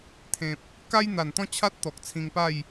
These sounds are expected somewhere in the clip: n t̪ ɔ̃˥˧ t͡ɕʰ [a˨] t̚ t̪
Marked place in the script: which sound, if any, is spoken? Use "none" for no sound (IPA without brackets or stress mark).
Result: a˦